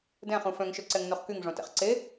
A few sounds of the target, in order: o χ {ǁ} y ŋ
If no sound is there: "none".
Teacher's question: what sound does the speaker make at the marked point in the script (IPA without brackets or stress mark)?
k